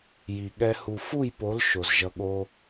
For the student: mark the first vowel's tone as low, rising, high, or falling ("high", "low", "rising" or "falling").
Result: low